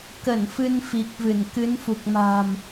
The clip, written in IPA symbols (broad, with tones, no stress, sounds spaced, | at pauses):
k ə˧˩ n f ɨ˧ n f i˨˩ k̚ v ɨ˧˩ n k ɨ˨˦ n f u˨˩ k̚ m a̤˨˩ m